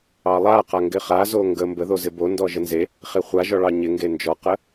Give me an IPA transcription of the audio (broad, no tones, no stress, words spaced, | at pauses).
ɑlˠa qaŋɡɪχazo ŋɡə mbəðozɪ bondɔ ʒənze | χeχʷa ʒɔɭɑɲɪ ŋɡend͡ʒɔqə